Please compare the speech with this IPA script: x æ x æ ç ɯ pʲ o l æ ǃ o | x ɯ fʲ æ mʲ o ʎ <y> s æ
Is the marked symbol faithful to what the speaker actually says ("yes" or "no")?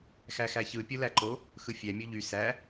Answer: yes